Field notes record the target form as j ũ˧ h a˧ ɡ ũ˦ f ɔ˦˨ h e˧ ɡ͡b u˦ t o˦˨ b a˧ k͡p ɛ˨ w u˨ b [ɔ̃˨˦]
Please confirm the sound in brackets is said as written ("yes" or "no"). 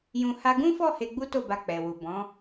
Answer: yes